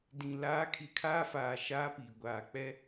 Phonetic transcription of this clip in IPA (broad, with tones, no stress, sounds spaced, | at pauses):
d ĩ˨ l aː˨˦ kʰ i˨ kʰ aː˦ f aː˨ ʃ aː˦ p iː˨ ɡʷ aː˨ k͡p ɛ˦